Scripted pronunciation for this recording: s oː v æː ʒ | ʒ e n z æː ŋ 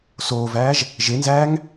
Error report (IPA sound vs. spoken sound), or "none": none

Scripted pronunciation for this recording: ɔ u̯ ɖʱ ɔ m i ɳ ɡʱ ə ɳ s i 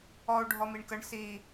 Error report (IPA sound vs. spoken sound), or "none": ɡʱ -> k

